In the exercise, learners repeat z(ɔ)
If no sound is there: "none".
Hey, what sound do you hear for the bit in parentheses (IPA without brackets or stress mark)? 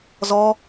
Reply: ɔ